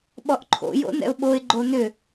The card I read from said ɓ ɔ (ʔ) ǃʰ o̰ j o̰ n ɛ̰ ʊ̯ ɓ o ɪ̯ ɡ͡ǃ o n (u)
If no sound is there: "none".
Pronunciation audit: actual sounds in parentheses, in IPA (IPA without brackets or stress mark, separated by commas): ʔ, ʏ